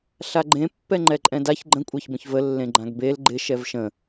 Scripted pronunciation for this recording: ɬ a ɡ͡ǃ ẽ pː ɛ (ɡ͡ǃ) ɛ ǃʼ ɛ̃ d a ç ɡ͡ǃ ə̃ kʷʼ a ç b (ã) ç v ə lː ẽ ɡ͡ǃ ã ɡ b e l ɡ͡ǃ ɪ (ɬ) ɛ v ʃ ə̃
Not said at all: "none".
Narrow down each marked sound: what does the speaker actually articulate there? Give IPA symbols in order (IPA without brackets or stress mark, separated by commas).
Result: ŋ͡ǃ, ə̃, ʃ